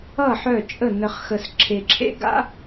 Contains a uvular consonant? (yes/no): yes